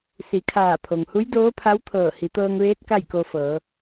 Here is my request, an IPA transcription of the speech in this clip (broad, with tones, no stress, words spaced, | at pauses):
si˩˧kʰaː˧˩pʰo˩ŋ hu˧˥jdoː˧˥pʰa˧˥w t̪ʰɤː˧˩ hi˩˧t̪ɤː˧ŋʋeː˧˥t̚ ka˥˨jko˧fɤː˩˧